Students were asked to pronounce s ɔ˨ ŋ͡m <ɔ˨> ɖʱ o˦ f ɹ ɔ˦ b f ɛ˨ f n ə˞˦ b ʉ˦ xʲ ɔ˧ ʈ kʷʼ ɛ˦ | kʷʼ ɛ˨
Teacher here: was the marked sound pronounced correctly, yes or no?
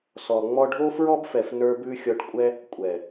no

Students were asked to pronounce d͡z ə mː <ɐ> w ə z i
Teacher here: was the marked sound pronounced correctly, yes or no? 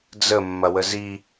yes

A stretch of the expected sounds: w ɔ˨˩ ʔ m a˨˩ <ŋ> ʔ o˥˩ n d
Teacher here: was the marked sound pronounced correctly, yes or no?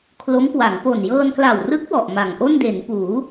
yes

